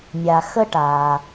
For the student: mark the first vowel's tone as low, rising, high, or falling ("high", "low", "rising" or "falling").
low